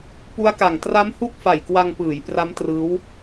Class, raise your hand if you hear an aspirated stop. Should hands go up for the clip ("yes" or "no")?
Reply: no